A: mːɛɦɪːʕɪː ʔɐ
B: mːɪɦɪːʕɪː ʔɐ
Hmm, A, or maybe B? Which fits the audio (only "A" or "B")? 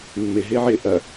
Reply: B